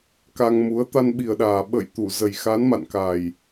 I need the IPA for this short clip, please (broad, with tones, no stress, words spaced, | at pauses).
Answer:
ka˧ŋmu˨˦ə̯ t̪a˧nɓi˨˩ə̯ɗaː˨˩ ɓə̰˧˨j t̪u˧˩zə˨˩j xa˨˦nma̰˧˨nka˨˩j